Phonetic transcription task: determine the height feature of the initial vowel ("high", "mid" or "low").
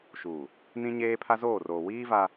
high